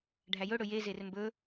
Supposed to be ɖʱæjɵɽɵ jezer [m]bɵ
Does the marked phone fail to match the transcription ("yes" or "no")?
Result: no